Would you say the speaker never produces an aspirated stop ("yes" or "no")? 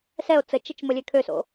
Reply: no